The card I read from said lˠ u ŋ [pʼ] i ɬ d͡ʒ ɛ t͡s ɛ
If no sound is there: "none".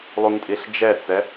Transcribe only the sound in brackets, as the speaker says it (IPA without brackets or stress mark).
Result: tʼ